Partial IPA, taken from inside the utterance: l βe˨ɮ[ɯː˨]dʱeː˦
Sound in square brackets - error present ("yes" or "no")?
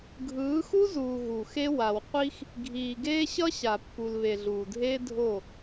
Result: yes